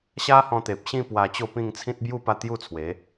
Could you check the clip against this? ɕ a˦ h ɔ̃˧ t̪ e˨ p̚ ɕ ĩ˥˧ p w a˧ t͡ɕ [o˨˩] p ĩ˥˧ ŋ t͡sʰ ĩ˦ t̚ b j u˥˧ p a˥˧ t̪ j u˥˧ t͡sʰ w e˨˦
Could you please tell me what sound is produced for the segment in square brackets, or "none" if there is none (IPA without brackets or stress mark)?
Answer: o˥˧